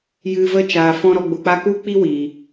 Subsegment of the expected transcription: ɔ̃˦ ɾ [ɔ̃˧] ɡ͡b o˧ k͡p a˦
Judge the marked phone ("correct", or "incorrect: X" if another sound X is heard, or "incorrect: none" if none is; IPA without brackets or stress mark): incorrect: ɔ˧